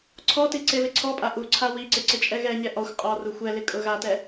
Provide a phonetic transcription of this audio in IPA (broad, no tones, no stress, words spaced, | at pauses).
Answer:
ǀʰɔti ǀeβɪǀʰɔpʼa ʔuǀʰa wiǀɪ ǀɪt͡ʃʼɛɣɛɲɛ ʔɔxʷ qʼɔ ruxʷɛlɪ kʼʊɣatɛ